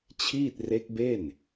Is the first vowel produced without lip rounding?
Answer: yes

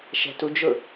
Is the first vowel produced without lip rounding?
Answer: yes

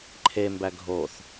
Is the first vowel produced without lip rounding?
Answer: yes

